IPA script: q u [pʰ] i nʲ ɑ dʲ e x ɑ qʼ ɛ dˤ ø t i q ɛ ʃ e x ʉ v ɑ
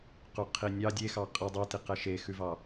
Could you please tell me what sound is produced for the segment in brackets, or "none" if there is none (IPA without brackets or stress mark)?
qʰ